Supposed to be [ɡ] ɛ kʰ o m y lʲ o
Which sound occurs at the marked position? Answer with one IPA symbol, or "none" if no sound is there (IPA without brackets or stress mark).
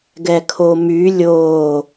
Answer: ɡ